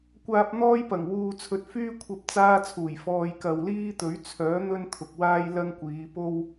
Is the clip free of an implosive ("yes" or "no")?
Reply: yes